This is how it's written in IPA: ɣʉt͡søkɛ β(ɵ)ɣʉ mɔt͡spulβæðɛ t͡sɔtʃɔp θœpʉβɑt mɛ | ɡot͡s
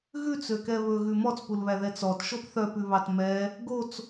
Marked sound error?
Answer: no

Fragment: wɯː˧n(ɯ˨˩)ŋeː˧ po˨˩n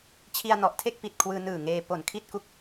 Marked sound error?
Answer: yes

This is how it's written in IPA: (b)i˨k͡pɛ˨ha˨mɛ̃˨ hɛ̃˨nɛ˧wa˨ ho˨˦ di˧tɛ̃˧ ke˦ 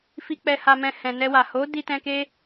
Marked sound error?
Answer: yes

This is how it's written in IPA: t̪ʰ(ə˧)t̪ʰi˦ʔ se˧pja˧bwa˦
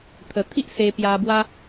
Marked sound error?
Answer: yes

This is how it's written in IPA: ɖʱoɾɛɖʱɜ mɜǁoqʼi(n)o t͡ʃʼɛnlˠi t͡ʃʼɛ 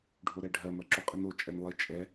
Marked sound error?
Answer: no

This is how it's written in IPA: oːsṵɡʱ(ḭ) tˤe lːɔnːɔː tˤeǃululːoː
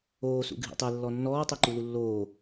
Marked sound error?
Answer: no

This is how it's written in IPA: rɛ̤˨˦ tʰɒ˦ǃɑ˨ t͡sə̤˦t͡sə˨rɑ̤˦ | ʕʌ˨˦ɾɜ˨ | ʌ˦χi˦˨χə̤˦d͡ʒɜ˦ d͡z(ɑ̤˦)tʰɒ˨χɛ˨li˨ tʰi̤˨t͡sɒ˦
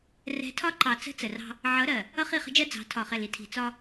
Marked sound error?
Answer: yes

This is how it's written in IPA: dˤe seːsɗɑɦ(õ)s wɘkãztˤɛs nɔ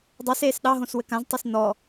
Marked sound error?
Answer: no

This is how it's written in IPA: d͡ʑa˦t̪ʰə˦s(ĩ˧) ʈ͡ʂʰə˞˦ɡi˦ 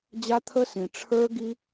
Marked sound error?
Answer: no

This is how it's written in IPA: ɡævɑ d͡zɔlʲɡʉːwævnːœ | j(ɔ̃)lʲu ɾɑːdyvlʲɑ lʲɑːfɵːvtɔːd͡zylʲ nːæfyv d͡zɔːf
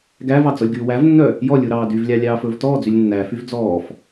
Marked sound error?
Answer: yes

